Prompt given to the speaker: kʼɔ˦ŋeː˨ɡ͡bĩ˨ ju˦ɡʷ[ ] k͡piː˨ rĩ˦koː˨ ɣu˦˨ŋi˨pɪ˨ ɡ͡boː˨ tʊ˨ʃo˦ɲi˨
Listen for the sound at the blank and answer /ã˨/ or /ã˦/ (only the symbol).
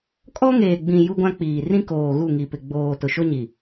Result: ã˦